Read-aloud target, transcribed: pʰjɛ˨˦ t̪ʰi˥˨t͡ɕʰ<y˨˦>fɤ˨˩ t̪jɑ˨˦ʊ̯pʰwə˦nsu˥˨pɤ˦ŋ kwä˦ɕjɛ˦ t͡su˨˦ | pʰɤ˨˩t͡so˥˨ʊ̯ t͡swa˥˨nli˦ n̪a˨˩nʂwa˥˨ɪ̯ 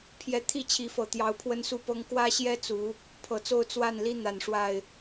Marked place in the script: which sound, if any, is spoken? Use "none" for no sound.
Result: i˨˦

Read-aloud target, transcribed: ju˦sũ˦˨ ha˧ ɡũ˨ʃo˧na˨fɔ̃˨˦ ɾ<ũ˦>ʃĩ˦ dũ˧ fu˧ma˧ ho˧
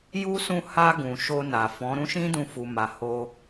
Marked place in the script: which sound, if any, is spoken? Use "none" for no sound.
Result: ũ˦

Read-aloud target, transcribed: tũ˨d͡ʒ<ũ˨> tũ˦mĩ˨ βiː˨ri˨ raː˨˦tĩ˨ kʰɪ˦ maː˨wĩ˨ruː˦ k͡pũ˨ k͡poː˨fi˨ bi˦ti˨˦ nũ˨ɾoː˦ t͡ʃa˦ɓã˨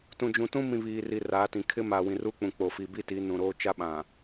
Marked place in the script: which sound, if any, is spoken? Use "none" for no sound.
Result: ũ˨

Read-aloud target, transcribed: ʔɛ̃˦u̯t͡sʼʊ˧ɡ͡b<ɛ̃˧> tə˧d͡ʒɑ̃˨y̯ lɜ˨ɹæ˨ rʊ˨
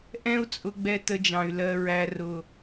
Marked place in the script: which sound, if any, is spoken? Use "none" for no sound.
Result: ɛ˧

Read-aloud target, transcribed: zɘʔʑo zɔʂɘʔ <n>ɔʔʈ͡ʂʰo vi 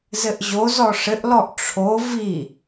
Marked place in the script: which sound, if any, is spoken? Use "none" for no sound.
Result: l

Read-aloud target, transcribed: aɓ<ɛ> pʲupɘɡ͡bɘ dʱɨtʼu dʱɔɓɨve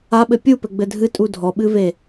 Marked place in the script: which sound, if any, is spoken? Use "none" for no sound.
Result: ɘ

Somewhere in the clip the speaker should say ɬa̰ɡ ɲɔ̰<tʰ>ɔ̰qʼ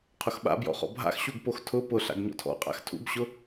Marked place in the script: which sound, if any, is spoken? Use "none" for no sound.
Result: tʰ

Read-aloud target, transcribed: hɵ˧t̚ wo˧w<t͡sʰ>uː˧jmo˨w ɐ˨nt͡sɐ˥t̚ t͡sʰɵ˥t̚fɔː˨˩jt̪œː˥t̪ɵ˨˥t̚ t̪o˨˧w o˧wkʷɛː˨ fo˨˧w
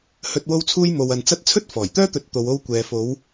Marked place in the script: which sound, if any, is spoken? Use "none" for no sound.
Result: t͡sʰ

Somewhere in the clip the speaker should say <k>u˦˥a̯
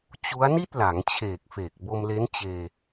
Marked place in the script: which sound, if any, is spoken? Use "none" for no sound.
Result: t͡ɕ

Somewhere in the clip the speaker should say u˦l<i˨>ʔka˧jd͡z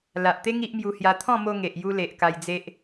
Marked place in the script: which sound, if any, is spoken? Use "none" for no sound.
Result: e˨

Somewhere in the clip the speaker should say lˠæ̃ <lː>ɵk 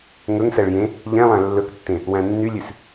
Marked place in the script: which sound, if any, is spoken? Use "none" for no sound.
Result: lː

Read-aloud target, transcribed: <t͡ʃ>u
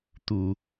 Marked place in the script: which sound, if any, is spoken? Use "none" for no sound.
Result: t̪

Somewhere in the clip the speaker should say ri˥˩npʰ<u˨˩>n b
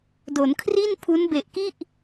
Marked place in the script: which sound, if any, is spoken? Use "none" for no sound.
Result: u˦˥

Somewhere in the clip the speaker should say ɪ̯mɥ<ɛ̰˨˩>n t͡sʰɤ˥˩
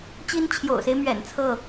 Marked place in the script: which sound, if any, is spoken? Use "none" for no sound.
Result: ɛ̰˨˩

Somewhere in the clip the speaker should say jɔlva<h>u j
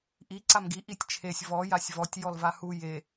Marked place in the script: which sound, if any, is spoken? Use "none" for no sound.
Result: h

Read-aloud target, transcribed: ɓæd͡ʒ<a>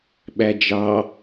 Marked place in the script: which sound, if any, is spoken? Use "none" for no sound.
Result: ɑ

